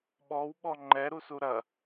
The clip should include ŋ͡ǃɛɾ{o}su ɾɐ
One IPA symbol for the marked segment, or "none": u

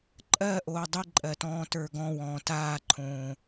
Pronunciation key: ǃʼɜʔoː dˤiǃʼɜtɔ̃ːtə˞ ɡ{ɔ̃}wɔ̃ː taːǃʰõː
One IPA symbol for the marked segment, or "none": ɔ̃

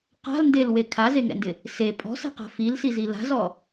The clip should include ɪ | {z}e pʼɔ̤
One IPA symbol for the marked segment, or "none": s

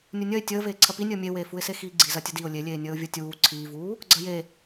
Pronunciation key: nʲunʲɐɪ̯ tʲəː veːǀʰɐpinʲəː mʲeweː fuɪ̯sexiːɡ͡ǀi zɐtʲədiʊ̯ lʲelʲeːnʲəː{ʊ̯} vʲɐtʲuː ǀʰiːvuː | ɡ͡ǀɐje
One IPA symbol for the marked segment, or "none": ʊ̯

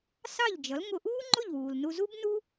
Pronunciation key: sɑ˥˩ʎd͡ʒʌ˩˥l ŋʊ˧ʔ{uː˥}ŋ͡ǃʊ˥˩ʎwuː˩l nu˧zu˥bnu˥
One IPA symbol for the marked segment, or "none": uː˥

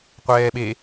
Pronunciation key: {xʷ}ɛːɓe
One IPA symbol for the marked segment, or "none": qʷ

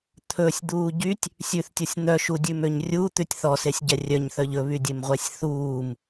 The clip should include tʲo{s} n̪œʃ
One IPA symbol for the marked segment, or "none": sʲ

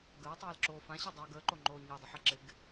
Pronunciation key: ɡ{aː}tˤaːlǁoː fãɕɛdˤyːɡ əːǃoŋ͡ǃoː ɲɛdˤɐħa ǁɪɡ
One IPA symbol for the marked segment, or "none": əː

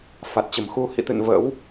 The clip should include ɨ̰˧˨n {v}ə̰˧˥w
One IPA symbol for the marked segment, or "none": v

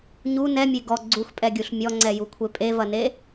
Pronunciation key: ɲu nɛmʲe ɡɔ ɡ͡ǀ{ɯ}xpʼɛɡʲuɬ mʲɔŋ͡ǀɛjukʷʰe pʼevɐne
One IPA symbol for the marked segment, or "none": u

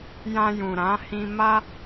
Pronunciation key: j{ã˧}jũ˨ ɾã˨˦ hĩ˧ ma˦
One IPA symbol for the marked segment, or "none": ã˧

